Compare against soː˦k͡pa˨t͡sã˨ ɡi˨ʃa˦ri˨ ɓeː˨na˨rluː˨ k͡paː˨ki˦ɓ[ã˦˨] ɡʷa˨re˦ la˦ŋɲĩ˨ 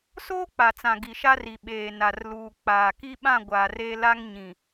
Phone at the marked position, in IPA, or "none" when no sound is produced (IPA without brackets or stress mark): ã˦˨